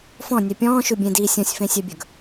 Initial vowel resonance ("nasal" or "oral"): nasal